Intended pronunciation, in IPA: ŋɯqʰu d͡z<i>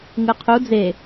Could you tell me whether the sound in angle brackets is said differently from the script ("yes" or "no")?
yes